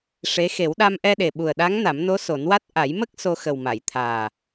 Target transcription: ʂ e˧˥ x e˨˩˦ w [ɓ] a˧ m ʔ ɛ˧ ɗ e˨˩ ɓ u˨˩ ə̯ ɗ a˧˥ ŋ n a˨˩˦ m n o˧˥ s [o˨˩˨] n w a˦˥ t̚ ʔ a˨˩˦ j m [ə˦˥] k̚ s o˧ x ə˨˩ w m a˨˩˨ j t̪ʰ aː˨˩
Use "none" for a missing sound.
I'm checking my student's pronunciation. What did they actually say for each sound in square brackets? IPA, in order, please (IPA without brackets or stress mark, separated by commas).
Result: ɗ, o˨˩˦, ə˦˥